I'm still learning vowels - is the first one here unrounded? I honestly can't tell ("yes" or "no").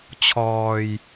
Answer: no